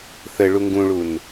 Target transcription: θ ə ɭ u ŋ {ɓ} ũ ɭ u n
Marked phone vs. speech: incorrect: ɡ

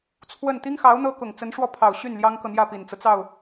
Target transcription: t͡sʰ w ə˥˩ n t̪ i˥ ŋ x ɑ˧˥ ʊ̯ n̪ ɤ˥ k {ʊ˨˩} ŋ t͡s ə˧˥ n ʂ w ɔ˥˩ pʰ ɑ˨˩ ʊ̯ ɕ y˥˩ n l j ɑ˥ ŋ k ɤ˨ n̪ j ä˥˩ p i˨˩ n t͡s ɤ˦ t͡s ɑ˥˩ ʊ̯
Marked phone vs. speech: correct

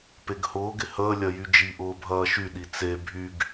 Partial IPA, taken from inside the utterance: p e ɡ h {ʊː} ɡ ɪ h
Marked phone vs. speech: correct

